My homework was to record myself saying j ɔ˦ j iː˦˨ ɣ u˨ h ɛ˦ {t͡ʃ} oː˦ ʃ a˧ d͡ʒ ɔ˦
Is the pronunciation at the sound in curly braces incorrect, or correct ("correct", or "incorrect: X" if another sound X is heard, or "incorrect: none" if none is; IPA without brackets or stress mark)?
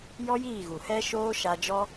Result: incorrect: ʃ